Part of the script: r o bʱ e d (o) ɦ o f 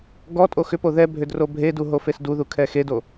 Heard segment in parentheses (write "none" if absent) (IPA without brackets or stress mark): u